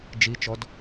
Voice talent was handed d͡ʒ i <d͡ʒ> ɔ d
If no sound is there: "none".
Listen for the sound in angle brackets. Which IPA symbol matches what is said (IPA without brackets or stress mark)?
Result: t͡ʃ